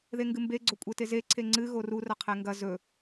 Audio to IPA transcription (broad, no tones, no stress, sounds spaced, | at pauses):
ð e ŋ ɡ ɨ m b e ɡ͡ǀ o kʷʼ e t e z e ǀʰ e ŋ͡ǀ ɨ ɣ o r u r ɐ qʰ e ŋ ɡ ɐ z ɵ